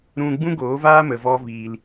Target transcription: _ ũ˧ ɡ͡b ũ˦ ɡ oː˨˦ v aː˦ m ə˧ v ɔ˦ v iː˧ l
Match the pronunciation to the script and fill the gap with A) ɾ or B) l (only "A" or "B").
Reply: A